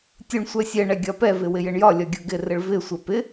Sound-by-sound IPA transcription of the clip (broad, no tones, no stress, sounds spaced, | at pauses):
tʲ u ɳ sʷ ɛ sʲ ɛ ɳ ɛ ɡʲ ɒ p ɛ v ɪ w ɪ j ɪ ɳ j ɒ lʲ ɒ ɡʲ u ɡ ɪ r ɪ ɭ v ɪ sʷ ɛ p ɪ